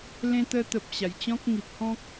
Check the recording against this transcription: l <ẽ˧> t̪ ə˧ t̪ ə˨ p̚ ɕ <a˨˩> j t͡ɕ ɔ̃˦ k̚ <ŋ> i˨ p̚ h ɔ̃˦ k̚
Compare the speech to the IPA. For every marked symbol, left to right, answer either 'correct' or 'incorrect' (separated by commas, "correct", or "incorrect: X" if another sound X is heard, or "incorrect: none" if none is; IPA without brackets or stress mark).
correct, correct, correct